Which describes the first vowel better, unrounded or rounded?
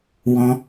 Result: rounded